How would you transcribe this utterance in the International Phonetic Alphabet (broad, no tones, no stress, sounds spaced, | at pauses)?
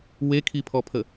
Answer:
w e kʰ i pʰ ɔ pʰ ə